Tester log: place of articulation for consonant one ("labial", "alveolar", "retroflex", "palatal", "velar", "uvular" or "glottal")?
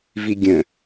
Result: labial